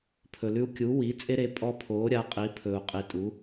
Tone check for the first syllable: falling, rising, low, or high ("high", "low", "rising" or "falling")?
low